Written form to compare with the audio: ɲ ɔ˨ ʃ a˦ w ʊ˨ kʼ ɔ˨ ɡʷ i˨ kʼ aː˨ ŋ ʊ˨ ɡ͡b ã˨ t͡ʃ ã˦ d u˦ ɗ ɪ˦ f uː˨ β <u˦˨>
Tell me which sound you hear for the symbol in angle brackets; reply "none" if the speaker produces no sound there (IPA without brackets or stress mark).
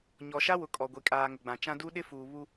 u˦